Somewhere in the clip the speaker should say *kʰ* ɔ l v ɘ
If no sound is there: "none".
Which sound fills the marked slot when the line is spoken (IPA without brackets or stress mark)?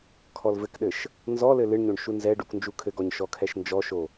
kʰ